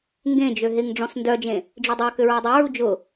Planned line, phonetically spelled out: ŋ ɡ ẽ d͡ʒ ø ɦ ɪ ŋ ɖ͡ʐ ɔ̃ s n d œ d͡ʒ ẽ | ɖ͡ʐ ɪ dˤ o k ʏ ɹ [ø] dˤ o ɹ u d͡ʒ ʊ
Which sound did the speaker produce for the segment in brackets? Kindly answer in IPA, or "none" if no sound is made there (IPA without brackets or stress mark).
œ